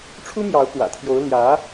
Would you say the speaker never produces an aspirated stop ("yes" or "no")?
no